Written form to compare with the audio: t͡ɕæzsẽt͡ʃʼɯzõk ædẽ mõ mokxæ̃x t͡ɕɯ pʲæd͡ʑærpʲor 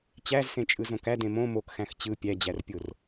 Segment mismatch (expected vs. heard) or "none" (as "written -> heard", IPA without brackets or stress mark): none